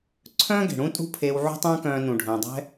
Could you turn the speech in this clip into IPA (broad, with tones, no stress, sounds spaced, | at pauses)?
ǀʰ œ̃ː˥ ɡ e̤˩ ɽ ũ˥ tʼ ṳ˥ pʰ eː˧ w ʕ ṳ˥ tˤ œ̃ː˥ k œ̃ː˧ n ũ˩ ɖʱ œ̃ː˩ dˤ ɛ̤˥